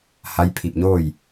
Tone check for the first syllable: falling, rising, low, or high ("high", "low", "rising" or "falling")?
rising